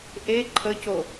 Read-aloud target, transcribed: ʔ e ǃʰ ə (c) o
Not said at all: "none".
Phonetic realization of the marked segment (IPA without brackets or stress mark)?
c